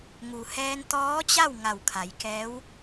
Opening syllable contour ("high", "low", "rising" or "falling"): low